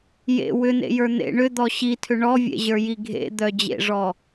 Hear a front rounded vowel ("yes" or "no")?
yes